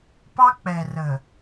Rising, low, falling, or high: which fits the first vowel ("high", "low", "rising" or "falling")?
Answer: high